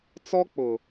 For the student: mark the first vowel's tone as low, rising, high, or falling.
high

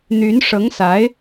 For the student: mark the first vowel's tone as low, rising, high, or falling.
rising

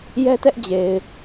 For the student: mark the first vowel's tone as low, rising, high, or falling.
high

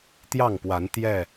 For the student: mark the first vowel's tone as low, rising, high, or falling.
falling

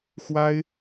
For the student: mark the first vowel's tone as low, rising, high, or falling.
high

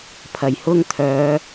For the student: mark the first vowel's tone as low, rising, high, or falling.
low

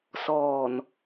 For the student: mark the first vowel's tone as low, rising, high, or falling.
low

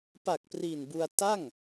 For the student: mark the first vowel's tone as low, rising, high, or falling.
low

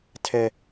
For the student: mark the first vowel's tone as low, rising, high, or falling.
high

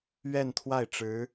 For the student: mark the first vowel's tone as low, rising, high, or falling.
falling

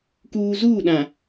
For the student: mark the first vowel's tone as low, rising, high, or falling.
low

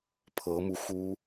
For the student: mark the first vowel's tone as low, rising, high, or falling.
rising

